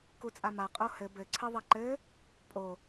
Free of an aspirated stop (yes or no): no